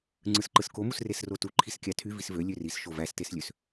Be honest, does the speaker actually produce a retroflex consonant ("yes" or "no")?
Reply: no